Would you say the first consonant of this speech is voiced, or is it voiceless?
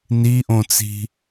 voiced